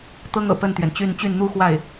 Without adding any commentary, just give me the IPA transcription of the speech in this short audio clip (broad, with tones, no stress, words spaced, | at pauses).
t̪ɤ˥ŋɤ̰˨˩ pə˥˩nt̪ɥɛ˩nt͡ɕy˥˧n t͡ɕy˥˩nn̪u˥xwa˥˩ɪ̯